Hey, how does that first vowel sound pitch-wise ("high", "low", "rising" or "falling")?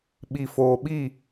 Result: low